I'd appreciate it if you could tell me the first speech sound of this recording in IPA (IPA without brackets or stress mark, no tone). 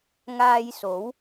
ŋ